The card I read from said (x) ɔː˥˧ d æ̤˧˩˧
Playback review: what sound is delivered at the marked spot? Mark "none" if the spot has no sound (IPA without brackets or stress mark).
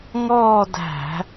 ŋ